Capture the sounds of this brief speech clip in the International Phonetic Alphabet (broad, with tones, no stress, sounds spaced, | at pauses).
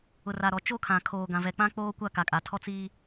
ʊ˨ r aː˨ ɾ ɔ˨ t͡ʃ o˦ kʰ ã˨ kʰ oː˨ ɡ ã˨ v ɛ˨ k͡p ã˦ k͡p oː˦ kʷ a˦ k a˨ kʼ a˨ tʰ ɔ˦ t͡s iː˦